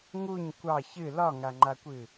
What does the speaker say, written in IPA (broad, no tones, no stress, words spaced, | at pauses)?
ŋuɲ kʷɑ çɨ lɒŋaŋ͡ǃakʷɨ